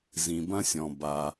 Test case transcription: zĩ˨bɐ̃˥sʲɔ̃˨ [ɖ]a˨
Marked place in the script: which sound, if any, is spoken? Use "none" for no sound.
b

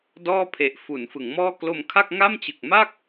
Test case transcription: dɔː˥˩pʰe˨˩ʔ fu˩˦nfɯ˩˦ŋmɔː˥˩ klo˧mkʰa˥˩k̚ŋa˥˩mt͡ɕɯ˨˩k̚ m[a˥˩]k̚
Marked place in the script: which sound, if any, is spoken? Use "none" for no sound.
a˥˩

